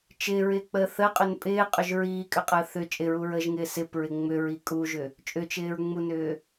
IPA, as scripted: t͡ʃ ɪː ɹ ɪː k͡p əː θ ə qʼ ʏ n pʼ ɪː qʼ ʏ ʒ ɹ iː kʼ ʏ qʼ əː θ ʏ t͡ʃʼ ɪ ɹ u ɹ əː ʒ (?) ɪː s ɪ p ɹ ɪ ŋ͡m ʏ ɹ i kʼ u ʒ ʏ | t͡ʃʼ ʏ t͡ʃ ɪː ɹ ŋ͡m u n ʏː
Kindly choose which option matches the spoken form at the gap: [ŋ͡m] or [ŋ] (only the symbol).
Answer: ŋ